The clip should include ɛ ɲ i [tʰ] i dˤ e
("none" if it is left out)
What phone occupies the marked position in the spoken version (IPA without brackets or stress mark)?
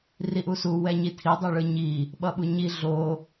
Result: tʰ